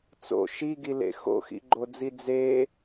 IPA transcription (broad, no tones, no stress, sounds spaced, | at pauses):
t͡s o̰ ʃ i ɡ i l ḛ x o̰ x ḭ ɡ͡ǃ o d͡z i d͡z e